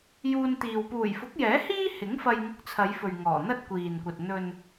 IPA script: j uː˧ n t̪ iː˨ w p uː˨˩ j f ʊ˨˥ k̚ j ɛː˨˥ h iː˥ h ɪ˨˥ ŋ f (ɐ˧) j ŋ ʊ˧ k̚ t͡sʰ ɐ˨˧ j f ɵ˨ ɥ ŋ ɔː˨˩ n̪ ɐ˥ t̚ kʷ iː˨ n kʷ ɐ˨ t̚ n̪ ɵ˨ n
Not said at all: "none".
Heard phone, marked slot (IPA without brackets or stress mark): ɐ˧